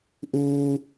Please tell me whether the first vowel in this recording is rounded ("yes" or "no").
yes